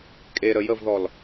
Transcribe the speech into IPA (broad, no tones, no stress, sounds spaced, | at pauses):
kʼ e ɾ ə j ə v ð ɔ l